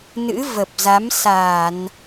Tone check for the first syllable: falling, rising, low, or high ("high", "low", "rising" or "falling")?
rising